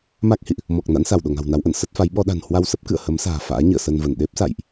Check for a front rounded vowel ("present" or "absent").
absent